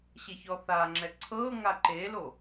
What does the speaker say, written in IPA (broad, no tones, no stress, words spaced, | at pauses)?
ɕeçɔθaŋ͡ǁɛ ǀʰɤ ŋaǃelo